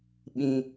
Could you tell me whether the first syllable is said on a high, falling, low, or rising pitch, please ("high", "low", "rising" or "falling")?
low